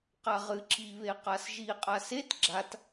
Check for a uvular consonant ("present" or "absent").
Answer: present